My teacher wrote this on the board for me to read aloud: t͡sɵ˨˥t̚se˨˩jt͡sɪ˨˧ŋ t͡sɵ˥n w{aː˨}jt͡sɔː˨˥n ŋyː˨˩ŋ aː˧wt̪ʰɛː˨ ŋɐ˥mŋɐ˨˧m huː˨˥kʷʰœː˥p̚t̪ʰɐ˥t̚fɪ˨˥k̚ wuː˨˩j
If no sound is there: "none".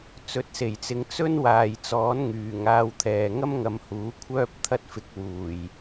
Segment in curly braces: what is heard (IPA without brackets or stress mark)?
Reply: aː˨